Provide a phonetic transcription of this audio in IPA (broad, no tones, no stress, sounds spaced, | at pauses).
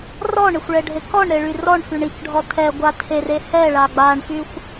r ɔ ɳ e xʷ ɭ ɛ ɖʱ e k ɔ ɳ ɾ e ɭ y r ɔ ɳ f y ɳ i k ɖʱ ɔ tʰ ɛ ɡʷ a tʰ e r e h ɛ ɭ a ɡ͡b a ɳ f y xʷ